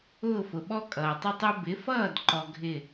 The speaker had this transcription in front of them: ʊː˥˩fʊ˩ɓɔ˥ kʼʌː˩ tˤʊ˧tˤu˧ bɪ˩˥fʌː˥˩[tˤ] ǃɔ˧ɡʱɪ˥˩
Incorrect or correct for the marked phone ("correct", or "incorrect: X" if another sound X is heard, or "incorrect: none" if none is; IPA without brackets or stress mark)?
incorrect: d